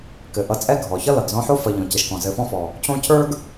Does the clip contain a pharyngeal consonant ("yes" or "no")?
yes